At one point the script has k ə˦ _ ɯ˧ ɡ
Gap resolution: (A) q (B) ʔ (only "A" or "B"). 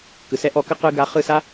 A